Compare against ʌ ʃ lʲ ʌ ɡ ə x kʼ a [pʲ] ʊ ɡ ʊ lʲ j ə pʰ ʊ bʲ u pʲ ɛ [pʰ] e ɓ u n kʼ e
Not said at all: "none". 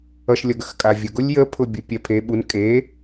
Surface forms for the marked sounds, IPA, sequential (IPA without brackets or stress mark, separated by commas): vʲ, pʰ